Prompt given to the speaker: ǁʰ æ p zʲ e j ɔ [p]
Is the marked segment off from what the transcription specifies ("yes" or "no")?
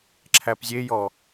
yes